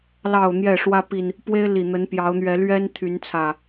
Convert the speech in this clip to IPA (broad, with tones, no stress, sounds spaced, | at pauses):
l ɑ˨˩ ʊ̯ n̪ j ɛ˥˨ ʂ w ä˦ p i˨ n | p w e˦ ɪ̯ l i˨˩ n̪ ə˨˦ n p j ɑ˨˦ ʊ̯ n̪ ɥ ɛ˨˦ l ɥ ɛ˦ n t̪ʰ y˨˦ n t͡sʰ ä˨˩